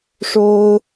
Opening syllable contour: high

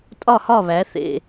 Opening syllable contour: falling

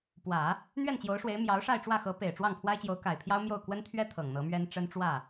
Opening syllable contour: low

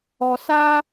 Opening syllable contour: high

